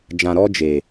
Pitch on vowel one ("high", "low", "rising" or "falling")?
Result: low